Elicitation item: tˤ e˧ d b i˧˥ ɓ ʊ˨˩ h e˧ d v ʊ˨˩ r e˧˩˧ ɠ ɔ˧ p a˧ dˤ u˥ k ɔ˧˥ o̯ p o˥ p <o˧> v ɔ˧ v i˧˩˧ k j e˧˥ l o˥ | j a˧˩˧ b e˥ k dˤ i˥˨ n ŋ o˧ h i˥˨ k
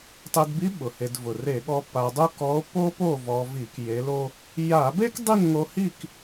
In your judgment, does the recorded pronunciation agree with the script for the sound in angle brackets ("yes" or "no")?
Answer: no